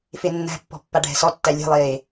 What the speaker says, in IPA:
fenːæ̤pːɔ̤ pːaɖʱɛ̤sɔtːæ lʲe̤lˠeː

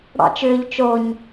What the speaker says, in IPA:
ɽɑ̰t͡ʃʏːʎ t͡ʃoɲ

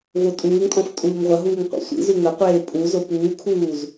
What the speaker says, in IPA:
votʼuːŋtʼɔ̃f tʼuːŋʁʷɐɦuːŋ qʷɛ̰sʷḭzu ŋɐqʷeː pʼu zopuːkʰuːz

